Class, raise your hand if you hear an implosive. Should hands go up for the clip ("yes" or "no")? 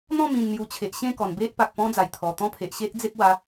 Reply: no